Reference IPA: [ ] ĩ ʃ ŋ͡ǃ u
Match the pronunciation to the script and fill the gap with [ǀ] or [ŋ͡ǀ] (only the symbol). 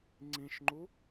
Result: ŋ͡ǀ